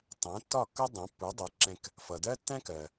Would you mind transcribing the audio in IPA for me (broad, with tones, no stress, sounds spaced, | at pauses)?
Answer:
tˤ æ̃˩˥ tː ɒ˥˩ kː ʌ˥ dˤ ɛ̃˩˥ pː u˩˥ dˤ ɛ˩˥ ǁ ɛ̃˧ k | f ʌ˩ d ɜ˥ tː æ̃˥ k ɜ˩